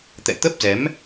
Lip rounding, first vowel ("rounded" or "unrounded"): unrounded